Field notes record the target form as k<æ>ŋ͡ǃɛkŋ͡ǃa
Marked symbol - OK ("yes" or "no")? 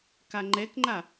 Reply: no